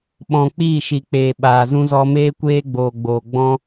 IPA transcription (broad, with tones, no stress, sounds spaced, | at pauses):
ɓ ɔ̃˨ k͡p iː˦˨ ʃ i˨ k͡p eː˨ ɓ aː˨ z ũ˧ z ɔ˧ m eː˦ kʷ eː˦ ɡ͡b oː˨ ɡ͡b oː˨ ɡ͡b ɔ̃˧